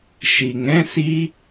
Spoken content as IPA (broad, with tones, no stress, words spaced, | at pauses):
ʃi˨ŋɛ̃˦si˦